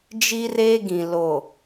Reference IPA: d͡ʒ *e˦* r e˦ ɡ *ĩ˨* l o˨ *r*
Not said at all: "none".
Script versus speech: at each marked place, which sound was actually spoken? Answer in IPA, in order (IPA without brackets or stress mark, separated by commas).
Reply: i˦, ĩ˨, none